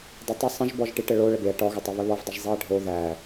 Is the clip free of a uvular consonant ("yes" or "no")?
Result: yes